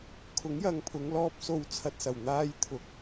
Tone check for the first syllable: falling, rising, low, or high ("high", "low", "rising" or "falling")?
rising